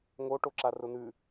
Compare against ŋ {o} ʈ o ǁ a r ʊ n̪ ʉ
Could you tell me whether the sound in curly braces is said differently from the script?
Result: no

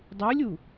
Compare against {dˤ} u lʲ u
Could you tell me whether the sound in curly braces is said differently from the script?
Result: no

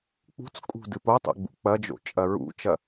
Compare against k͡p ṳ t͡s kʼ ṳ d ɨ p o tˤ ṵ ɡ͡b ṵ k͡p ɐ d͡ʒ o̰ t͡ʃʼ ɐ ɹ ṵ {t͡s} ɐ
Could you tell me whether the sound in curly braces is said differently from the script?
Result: yes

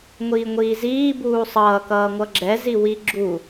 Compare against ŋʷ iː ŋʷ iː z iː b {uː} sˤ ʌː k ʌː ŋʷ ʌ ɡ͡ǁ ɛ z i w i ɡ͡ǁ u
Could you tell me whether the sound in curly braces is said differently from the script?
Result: no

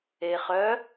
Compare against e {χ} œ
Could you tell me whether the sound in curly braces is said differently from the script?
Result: no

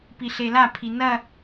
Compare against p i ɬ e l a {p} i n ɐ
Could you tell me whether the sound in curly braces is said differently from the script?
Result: yes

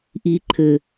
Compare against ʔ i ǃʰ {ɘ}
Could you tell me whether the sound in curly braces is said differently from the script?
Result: no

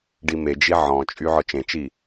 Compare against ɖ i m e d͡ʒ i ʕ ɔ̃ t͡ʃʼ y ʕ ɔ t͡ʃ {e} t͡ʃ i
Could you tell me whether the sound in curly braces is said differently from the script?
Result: yes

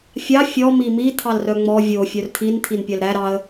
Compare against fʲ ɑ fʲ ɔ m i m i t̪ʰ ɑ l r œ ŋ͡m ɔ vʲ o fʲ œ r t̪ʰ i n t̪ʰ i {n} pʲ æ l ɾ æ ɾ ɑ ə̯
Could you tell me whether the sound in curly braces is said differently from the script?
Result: no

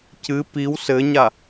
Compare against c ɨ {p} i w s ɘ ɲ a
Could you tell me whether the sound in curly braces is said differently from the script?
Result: no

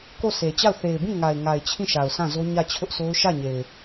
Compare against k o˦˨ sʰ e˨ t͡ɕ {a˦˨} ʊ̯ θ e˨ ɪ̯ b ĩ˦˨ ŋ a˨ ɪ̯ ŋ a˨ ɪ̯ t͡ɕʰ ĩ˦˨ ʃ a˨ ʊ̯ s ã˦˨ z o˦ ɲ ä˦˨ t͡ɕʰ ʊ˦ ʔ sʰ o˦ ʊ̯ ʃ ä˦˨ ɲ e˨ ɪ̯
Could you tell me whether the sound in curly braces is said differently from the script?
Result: no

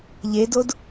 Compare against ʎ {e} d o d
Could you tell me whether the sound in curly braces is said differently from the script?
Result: no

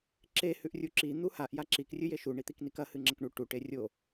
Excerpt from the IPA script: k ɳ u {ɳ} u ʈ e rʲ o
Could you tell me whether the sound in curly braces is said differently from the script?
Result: yes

